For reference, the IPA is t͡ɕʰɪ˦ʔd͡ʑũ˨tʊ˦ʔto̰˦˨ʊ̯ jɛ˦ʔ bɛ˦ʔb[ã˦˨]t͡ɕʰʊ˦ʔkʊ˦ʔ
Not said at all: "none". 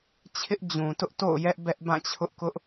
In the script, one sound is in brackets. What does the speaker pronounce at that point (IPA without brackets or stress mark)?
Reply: ã˦˨